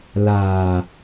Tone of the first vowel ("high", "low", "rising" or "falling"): low